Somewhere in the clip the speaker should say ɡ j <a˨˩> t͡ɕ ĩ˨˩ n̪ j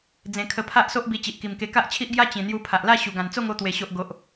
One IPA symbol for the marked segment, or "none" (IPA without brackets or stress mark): a˦